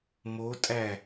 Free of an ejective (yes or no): no